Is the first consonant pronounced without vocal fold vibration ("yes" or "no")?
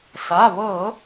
yes